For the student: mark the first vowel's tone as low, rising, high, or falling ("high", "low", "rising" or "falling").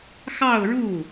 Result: falling